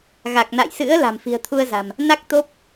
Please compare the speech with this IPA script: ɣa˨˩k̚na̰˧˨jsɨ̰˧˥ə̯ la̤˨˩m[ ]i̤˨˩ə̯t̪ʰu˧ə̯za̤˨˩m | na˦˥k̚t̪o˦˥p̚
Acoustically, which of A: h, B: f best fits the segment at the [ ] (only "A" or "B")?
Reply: B